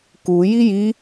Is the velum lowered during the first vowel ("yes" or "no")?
no